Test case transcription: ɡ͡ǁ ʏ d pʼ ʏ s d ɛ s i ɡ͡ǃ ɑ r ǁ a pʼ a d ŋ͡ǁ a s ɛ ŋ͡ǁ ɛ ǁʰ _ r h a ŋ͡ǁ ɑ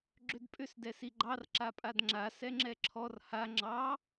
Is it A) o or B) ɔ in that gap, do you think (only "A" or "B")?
B